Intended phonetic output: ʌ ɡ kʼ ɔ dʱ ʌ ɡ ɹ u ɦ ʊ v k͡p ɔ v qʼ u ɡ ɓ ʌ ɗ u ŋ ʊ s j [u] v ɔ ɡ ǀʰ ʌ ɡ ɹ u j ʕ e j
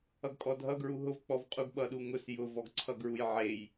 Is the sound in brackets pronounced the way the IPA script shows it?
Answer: no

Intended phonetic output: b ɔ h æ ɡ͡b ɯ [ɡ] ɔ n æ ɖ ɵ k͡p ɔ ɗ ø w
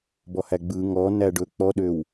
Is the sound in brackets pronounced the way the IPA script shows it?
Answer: no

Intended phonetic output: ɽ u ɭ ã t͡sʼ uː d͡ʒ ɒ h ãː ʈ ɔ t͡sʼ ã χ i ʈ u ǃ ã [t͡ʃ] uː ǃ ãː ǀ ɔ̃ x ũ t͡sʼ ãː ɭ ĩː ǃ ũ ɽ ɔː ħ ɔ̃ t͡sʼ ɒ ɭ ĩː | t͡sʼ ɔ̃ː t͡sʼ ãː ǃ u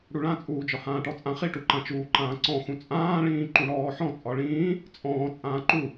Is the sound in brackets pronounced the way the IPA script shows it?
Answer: yes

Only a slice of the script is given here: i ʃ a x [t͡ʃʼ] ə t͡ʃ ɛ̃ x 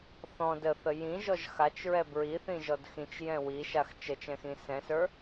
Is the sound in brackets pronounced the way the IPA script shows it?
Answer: no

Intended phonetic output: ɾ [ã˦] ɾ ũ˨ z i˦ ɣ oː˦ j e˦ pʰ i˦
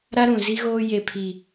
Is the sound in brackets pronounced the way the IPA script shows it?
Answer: no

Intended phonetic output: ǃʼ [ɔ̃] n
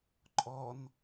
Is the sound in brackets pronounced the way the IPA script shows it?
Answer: no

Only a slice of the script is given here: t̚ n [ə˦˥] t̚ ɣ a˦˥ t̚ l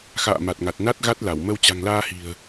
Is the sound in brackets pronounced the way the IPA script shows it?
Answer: no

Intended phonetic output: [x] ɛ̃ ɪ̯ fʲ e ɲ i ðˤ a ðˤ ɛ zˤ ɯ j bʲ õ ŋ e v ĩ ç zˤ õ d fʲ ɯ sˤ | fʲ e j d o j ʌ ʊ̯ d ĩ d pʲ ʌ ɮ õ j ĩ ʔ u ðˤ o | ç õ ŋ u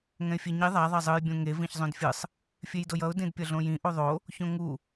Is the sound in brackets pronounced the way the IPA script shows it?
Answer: no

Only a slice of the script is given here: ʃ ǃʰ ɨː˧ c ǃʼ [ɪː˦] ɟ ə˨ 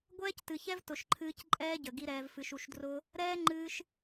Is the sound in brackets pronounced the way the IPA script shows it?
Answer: no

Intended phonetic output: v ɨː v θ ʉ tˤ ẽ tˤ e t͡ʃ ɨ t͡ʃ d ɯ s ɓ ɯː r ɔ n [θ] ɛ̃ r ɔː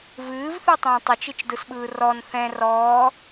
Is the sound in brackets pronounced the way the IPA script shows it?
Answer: yes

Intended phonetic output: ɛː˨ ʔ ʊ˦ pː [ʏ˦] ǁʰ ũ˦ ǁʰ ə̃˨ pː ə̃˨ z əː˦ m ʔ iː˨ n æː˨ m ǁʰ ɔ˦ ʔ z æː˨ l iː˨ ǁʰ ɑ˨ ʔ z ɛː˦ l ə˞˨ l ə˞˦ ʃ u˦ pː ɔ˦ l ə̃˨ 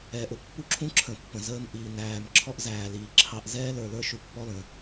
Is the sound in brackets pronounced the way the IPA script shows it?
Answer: no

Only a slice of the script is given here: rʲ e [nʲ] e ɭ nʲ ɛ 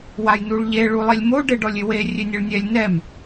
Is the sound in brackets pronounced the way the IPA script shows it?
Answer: yes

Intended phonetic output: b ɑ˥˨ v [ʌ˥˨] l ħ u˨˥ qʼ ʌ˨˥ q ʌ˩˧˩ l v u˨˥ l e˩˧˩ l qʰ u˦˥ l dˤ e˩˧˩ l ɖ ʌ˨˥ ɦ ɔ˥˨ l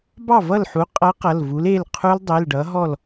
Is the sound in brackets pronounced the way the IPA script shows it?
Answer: yes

